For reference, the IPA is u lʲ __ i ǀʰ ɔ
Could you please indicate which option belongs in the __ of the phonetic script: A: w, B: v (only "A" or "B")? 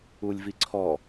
B